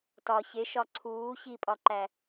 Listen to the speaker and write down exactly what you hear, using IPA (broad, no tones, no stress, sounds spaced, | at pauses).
t ɒ ç e ʃ ɒ ǀʰ uː ç i pʼ ɒ ǃ æ